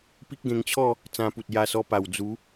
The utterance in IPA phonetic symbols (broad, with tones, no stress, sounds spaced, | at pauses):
p i˦ k̚ ɡ ẽ˧ ŋ t͡ɕʰ ɔ˥˧ | t͡s ã˧ p u˨ t̚ j a˧ s ɔ˧ p a˨˩ w d͡z u˨˦